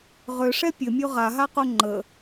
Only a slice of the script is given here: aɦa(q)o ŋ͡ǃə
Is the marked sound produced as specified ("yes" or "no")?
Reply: yes